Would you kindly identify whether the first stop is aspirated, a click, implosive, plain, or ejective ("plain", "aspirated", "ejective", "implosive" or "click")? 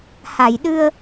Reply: implosive